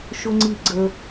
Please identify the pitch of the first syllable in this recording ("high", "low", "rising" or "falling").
high